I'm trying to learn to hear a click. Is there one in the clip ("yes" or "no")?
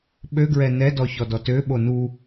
no